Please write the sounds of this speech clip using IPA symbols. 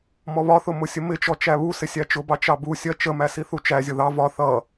mɔβɒθʊ mʊsʲəmɪt͡ʃɔ t͡ʃæβusɪ sʲæt͡ʃʊbɑ t͡ʃɑbusʲɜ t͡ʃəmæ siθut͡ʃæzʲʊ ðɑ vɒ θʌ

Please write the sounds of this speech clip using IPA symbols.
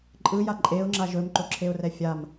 ǃʼɯja ǃʼeʊ̯ŋ͡ǁa ʒɵmǃoǁʰeʊ̯rɛ fʲam

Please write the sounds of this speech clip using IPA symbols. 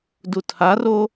dutʰaro

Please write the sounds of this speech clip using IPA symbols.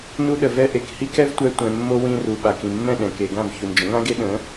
nu˧ɗə˨vɛ˧ ʔe˨khi˦kɛ˦vtʷɛ˧ tʷɛ̃˨mːo˧ wĩ˧ ru˨ ɓa˨kĩ˨mːɛ̃˦˨ɗɛ̃˨ ke˨ɡã˦˨v çu˨nd͡ʒə̃˨˦ŋã˦ɡe˦ ɗə̃˨˦

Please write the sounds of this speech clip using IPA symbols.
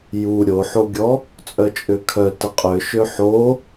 ju ɾʲoħoɡʲɔ | t͡sʼœt͡ʃʼøkʰœ təqʼøʃø ħo

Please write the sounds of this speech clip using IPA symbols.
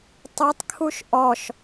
tˤɯtˤkʰuʃ ʔɔʃ

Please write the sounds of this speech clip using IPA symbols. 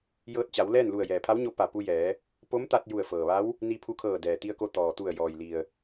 jɤː˧t̚t͡ɕa˩˧w lɛː˥˨nlu˧˩ə̯ jɛː˩pʰa˧˥wɲo˧ pa˧˩ pu˧jɛː˩˧ | po˧˥mt̪a˧t̚ ju˧˩ə̯fɤː˩ʋa˧˥w | ni˧pʰu˧kʰɤː˧˩ dɛː˩t̪i˧ə̯ko˧ t̪ɔː˩t̪u˧˩ə̯ jɔː˩jli˩ə̯

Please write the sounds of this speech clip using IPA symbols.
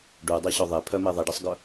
ɖudˤɛɕœ ðˤe pʰœme ðˤiɖɛsˤɡœ

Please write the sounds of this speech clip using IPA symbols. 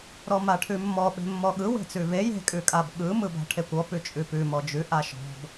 ɾɔmaʈʰʉmːɔ ɓe̤mːɔɠɯ we̤t͡sʉve je̤ kʼʉkʼabɠɯ mɯba̤ʈʰekʷɔ pʉt͡ʃʼʉpʉ mɔd͡ʒʉ ʔaʃɔ̤b

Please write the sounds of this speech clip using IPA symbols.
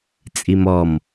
t͡sʼimɔm

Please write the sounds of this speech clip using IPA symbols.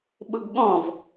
ɓʊɡɠɔ̃v

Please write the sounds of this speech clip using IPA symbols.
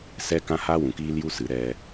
sɛ˦kã˦ ha˦wũ˨ kiː˦lju˦sɨ˨˦ ɾɛ˧

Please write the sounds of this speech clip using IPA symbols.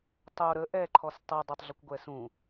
tˤo ɾə ʔɛǃʰɔs tˤodˤotˤɮəkʷɡʷɛ sũ

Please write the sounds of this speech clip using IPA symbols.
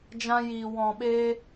d͡ʒã˧jiː˨ wɔ̃˨ɓeː˧

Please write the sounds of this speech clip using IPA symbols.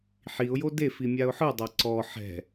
ħiʊ̯jo defi mʲaʊ̯ħɯdˤa ǀɔ ħɛ̤

